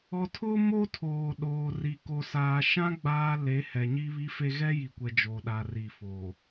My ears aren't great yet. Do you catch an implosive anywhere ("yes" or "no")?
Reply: yes